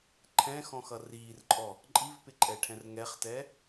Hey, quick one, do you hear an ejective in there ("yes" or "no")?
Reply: yes